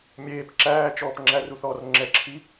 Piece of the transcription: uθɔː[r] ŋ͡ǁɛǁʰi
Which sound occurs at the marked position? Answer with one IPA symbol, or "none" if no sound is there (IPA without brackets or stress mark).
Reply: r